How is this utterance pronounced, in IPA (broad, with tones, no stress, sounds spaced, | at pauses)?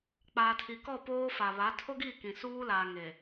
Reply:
k͡p aː˨ tʰ i˨ k ɔ˦˨ p oː˦ f a˨ β a˨˦ tʰ o˦ ɡ i˦˨ k ĩ˨ s uː˦ l aː˨ ŋ e˨